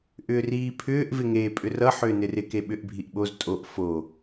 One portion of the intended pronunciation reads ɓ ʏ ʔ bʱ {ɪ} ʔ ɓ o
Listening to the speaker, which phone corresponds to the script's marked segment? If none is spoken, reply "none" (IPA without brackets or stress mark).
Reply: i